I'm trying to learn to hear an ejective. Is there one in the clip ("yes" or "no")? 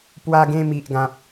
no